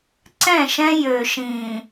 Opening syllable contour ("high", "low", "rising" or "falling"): falling